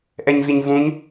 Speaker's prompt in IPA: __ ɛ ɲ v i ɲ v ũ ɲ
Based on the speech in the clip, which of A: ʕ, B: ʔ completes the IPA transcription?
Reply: B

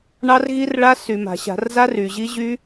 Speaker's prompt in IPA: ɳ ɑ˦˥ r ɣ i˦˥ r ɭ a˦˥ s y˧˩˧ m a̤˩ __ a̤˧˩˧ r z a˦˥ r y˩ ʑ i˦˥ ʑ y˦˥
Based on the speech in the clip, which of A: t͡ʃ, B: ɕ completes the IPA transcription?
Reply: B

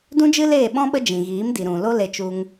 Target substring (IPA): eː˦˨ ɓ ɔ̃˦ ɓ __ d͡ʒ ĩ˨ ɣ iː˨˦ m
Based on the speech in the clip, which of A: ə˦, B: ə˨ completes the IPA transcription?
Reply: A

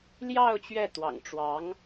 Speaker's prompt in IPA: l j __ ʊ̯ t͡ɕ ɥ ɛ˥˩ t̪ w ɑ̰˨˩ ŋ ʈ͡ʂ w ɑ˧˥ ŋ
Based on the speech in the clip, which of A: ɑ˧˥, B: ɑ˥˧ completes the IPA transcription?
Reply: B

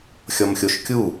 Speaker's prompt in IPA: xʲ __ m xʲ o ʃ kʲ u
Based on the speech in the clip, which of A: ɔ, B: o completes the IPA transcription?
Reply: A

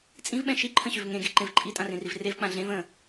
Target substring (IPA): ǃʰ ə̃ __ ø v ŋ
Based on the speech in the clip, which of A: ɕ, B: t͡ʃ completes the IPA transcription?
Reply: A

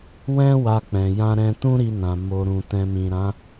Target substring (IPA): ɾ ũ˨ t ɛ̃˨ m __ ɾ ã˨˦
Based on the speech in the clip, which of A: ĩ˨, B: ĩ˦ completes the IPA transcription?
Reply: A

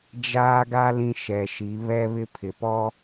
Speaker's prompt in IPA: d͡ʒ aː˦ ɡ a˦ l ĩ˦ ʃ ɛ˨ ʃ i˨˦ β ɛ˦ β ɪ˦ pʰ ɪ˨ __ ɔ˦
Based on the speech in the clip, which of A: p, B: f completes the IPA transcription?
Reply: A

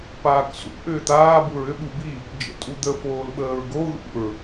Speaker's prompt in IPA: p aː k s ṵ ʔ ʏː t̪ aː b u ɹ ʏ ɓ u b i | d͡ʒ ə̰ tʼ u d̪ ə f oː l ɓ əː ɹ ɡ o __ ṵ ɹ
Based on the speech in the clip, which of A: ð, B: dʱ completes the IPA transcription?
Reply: A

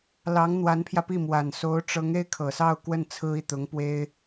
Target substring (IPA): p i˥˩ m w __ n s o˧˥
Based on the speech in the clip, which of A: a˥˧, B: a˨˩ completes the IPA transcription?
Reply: B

